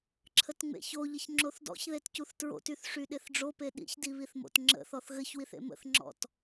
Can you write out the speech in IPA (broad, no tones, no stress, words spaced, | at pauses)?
ǁʰətŋ͡mḛçoʎəç ŋ͡ǁoθdɔ̰çðet cuθtɹo̰tyθ ʂyɗeθɖ͡ʐope ɗḭçdiβiθmo̰t ŋ͡ǁə̰θɔθ ɣɘçwiθḛ mə̰θŋ͡ǁɔ̰t